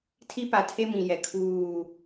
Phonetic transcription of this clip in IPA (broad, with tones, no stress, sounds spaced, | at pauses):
tʰ i˦ p a˨ tʰ e˦ m ĩ˨ j ɛ˨ kʰ uː˦˨